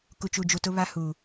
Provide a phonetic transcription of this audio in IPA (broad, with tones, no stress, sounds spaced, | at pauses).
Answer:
k u˨ t͡ʃ u˨ d͡ʒ u˨ t ʊ˦ β a˦ h u˨